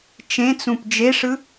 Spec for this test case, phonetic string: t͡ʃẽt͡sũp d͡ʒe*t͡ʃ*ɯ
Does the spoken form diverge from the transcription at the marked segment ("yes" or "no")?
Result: yes